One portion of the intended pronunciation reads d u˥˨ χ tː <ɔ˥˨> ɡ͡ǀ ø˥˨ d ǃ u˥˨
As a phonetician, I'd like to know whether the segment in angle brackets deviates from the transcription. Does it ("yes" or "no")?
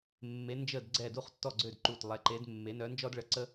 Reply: no